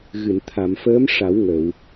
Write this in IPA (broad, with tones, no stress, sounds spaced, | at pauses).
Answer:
ɣ ɨ˨˩˨ n t̪ʰ a˨˩˨ m f əː˧˥ m ʂ a˨˩˦ w ŋ ə˨˩˨ w